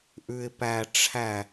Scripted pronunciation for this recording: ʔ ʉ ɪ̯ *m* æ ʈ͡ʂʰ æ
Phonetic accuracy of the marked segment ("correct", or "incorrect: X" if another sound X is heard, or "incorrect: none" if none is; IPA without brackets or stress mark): incorrect: p